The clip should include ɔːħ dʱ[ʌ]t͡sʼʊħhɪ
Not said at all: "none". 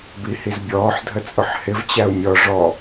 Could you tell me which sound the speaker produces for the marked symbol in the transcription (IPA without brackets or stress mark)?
ə